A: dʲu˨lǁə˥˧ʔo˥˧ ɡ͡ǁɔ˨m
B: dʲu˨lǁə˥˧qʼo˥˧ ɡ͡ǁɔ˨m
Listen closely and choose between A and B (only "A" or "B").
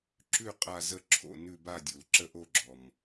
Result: A